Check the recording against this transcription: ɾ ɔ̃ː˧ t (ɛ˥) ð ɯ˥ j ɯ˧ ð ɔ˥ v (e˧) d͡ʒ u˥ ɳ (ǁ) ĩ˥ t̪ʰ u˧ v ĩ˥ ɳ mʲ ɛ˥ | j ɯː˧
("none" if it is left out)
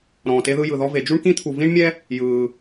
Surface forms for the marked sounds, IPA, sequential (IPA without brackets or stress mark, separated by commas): e˥, e˧, k